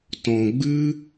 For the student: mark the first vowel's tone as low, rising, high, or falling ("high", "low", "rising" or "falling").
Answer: low